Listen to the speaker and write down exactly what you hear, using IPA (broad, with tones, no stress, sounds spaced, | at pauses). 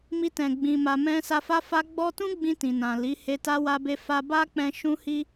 m i˧ t ɛ̃˨ ɡ͡b ĩ˨ m a˨ m ɛ̃˧ s a˧ f a˦ f a˦ ɡ͡b ɔ˦ t ũ˦ ɡ͡b ĩ˧ t ĩ˨ n ã˨ l i˨˦ h e˧ t a˦ w a˧ b e˧ f a˧ b a˦ k͡p ɛ̃˧ ʃ ũ˦ h i˦